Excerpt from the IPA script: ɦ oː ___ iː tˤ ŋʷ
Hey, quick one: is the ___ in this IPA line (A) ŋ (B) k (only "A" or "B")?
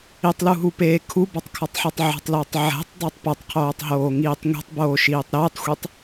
A